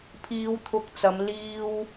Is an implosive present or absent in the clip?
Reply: absent